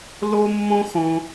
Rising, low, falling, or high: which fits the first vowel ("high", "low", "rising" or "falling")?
high